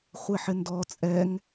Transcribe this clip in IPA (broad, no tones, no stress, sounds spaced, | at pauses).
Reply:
χʷ e ħ ɪ n d ɔ t͡sʼ ɛ ŋ